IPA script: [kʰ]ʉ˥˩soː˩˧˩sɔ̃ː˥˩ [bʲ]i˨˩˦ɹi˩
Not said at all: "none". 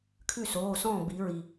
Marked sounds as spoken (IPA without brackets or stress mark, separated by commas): kʰ, b